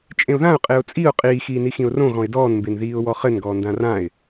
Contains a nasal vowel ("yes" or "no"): yes